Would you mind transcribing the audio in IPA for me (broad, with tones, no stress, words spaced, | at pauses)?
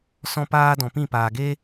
sɔ̃˦paː˦ dɔ̃˨pĩ˦˨paː˨ɡeː˦